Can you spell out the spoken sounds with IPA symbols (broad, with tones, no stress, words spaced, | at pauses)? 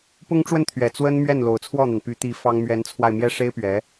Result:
pʊ˥ŋʈ͡ʂwə˥˩n t̪ʰɥɛ˨˩t͡swə˥n mɥɛ˥˩nlo˨˩ʊ̯t͡sʰwɔ˥˩n̪a˩n py˧˥t̪i˧˥ fɑ˥ŋ mɥɛ˧˥nt͡sʰwa˧ɪ̯ mjɛ˥ʂe˥ɪ̯pɥɛ˧˥